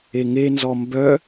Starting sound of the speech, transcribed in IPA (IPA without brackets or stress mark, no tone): e